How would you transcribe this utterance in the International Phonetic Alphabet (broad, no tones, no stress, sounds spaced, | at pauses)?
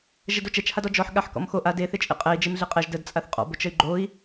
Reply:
ʒ ɛ d o t͡ʃ ɛ t͡ʃ h a d ɔ d͡ʒ ɔ ħ ɠ a ħ k ɔ̰ m x o ʔ a d e θ e t͡ʃʼ ḛ qʼ ɛ i̯ d͡ʒ e m ɮ e qʼ ɛ ʒ d ə d t͡sʼ a θ qʼ ɔ̰ b o t͡ʃ ə y̯ ɡ͡ǃ o i̯